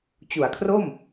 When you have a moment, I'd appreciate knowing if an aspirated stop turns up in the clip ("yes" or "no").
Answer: yes